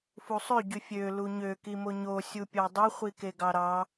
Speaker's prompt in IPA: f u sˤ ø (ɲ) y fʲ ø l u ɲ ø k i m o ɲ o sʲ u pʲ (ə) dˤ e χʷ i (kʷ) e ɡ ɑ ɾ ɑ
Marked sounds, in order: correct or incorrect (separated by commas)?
incorrect, incorrect, incorrect